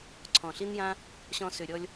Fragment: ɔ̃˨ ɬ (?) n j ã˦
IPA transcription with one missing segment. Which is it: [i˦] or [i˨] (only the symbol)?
i˦